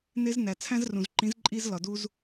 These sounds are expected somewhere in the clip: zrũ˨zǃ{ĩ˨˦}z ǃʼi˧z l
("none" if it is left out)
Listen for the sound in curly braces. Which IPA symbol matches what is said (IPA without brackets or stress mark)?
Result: ĩ˨˦